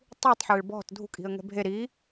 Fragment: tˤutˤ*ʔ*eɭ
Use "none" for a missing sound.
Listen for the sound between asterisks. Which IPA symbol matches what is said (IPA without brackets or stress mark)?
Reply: ħ